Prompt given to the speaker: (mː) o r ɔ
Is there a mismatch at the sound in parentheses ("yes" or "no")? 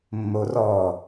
no